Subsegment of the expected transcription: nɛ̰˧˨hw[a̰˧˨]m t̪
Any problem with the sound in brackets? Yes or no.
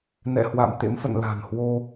no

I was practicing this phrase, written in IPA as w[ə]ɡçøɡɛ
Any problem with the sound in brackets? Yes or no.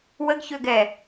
no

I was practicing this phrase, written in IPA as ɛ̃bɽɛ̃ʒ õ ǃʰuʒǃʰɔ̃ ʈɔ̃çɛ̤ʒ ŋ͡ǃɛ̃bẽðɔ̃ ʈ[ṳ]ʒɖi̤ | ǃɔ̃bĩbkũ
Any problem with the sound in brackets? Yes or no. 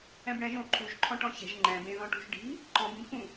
no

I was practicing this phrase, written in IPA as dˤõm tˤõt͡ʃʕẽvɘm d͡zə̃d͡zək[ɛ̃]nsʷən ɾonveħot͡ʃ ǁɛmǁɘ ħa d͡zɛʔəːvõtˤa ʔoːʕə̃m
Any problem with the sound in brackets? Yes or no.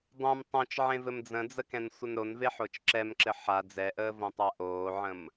no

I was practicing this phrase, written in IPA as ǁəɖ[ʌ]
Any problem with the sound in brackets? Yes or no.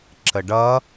no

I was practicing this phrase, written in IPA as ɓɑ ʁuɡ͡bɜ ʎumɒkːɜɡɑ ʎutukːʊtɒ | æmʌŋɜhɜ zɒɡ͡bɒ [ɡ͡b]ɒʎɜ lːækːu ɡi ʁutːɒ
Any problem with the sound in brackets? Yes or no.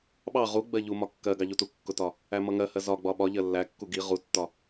yes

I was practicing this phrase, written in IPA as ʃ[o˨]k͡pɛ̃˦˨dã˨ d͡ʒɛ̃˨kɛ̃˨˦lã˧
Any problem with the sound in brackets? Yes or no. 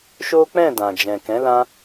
yes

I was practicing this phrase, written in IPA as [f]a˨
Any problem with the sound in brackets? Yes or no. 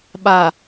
yes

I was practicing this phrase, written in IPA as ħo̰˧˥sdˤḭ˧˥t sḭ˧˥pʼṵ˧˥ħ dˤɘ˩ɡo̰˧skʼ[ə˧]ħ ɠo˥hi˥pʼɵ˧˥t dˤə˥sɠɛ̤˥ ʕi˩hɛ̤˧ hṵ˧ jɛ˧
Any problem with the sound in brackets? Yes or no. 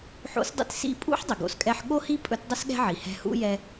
yes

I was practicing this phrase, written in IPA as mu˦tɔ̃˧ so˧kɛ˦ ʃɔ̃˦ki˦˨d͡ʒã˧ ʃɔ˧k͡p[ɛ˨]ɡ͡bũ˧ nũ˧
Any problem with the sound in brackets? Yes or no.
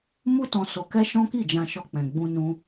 yes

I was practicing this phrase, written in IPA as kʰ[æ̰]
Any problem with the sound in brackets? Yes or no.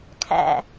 no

